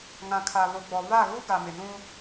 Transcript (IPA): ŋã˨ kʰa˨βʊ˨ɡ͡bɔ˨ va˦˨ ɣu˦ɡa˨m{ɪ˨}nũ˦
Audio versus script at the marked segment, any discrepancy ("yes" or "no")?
no